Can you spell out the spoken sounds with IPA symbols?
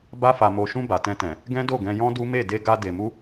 b a˧ f a˨ m o˨ ʃ ũ˧ b a˨ t ɛ̃˧ t ɛ̃˨ | ɡ ɛ̃˦ d o˦˨ ɡ ɛ̃˧ j ɔ̃˦ d u˦ m e˦˨ d e˧ ɡ a˧ d e˨ m u˧

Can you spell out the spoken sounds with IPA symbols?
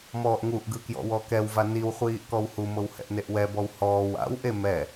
m ɔː ʔ ŋ u ʔ ɡ ɯ k j ɔ̰ w ɔ k ɛ w v a n i w χʷ iː ʔ k ɔ w h u m ɤ w h ɛ̰ ʔ n e ʔ w ɛ b ɔ w h ɔː w a̰ w ʔ e m ɛ

